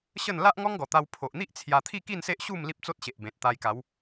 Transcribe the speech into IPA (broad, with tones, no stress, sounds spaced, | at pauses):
ɕ ə˥˧ n l a˦ ʔ ŋ ɔ˦ ŋ ɡ ɔ˨˩ t̪ a˧ w pʰ o˨ ʔ n̪ i˦ ʔ t͡sʰ j a˧ t̪ʰ i˥˧ k i˥˧ n s e˦ ʔ ɕ u˥˧ m l i˦ p̚ t͡s o˦ t̚ ɕ e˨ ʔ b ẽ˨ t̚ t̪ a˧ j k a˨˦ w